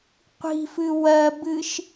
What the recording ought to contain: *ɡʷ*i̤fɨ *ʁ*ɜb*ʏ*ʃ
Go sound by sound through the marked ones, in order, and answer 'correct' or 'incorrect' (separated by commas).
incorrect, incorrect, incorrect